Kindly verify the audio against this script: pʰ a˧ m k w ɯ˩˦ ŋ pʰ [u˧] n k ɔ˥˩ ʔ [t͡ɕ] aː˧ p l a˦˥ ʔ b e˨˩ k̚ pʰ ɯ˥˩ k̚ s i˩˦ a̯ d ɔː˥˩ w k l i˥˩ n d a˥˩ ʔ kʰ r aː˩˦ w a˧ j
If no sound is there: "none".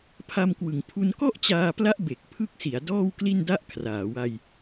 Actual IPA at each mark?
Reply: u˧, t͡ɕ

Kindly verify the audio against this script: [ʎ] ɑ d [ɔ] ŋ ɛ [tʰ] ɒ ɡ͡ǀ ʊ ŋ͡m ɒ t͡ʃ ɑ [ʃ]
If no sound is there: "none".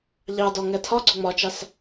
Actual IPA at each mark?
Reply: ʎ, ɔ, tʰ, s

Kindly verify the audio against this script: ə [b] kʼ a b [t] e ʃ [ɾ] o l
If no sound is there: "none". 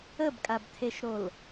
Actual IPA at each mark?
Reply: b, tʰ, ɾ

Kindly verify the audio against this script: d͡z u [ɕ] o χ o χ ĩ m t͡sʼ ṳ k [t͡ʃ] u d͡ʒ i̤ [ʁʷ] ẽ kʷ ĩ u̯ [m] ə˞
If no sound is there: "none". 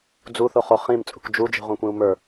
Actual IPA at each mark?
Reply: θ, d͡ʒ, ʁʷ, m

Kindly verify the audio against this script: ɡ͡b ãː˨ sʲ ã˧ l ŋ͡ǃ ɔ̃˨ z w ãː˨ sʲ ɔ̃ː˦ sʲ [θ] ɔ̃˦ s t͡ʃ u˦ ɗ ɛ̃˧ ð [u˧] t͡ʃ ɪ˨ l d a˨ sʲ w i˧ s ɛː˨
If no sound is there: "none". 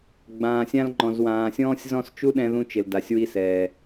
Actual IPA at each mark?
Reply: z, ũ˧

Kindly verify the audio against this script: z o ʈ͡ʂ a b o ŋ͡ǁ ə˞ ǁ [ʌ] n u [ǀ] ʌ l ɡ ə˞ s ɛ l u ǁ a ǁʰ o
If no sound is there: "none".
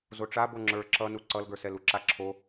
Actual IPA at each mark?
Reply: ʌ, ǀ

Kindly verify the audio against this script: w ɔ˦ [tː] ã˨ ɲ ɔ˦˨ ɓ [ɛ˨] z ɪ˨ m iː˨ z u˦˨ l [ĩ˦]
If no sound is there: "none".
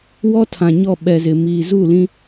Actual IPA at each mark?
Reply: tʰ, ɛ˨, ĩ˦

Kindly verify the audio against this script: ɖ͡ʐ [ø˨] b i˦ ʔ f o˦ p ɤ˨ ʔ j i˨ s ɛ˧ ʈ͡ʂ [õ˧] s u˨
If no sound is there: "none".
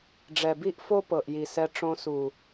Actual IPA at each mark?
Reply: ɛ˨, õ˧

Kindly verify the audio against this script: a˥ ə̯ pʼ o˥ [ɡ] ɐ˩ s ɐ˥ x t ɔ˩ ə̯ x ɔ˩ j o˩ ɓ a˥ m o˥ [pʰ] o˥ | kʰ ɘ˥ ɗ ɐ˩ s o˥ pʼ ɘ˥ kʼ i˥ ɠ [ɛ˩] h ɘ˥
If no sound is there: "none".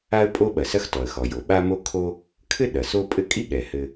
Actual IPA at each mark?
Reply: ɓ, kʰ, ɛ˩

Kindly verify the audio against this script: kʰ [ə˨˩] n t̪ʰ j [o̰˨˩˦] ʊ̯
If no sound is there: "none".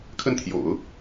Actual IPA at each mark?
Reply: ə˥˩, o̰˨˩˦

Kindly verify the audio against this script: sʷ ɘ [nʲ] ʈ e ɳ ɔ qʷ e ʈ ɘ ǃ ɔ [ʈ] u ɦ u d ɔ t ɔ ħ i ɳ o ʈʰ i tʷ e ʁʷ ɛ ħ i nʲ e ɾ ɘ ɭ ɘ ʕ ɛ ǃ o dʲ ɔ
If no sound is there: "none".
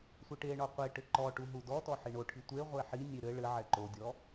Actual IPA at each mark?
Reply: none, ʈ

